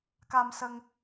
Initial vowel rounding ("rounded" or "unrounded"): unrounded